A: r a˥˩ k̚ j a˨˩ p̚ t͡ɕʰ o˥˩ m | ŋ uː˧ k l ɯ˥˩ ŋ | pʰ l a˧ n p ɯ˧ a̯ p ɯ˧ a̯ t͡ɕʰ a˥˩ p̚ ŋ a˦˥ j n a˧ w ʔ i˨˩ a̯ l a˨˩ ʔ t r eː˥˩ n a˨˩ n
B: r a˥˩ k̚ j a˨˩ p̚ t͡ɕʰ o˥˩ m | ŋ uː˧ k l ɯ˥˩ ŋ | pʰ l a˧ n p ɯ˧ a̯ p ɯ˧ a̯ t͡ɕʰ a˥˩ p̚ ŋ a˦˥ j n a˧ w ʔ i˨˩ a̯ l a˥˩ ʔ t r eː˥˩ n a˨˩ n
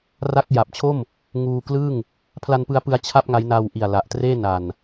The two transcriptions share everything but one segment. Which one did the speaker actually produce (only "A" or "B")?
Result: A